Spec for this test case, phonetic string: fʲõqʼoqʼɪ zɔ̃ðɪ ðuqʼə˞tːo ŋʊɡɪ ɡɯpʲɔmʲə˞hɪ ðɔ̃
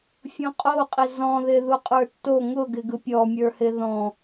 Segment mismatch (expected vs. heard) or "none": none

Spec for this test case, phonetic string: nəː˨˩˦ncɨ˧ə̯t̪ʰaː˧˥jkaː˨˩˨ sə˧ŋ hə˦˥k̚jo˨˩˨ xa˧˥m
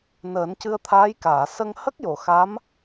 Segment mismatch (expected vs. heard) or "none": none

